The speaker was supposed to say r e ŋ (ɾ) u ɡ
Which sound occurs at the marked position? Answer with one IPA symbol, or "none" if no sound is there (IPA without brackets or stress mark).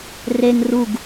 r